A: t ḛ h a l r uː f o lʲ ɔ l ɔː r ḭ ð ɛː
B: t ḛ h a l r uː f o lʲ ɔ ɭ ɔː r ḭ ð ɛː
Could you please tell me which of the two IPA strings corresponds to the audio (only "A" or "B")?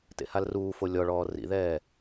B